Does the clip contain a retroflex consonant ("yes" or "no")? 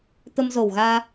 no